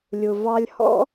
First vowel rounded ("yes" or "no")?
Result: yes